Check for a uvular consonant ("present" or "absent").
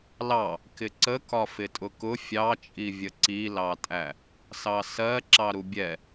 absent